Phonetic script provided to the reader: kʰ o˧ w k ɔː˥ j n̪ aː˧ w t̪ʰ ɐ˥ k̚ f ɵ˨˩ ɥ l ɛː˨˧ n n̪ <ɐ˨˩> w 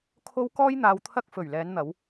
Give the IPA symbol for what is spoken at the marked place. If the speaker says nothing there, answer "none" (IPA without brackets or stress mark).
ɐ˨˧